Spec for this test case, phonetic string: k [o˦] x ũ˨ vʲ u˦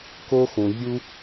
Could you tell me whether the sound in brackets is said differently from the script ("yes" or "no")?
no